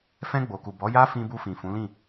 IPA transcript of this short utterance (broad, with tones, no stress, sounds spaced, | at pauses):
f ɛ̃˧ ɡ͡b o˨ k u˨ b ɔ˨˦ j a˦ f ĩ˧ b u˧ f ĩ˨ f ũ˨˦ l ĩ˦˨